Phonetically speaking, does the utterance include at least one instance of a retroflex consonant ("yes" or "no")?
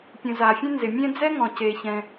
no